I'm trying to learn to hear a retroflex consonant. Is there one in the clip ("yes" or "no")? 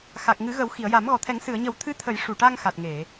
yes